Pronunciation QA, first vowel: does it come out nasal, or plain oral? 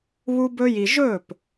oral